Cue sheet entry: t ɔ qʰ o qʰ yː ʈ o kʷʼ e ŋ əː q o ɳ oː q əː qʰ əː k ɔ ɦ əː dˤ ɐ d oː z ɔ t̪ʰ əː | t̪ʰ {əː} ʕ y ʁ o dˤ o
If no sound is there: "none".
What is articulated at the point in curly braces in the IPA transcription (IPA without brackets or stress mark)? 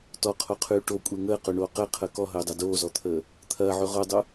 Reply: ɐː